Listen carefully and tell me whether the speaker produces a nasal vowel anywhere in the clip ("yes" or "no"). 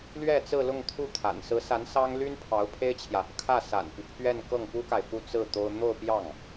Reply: no